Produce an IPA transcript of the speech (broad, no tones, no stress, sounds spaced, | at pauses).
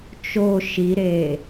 t͡ʃ o ʃ i ɾ e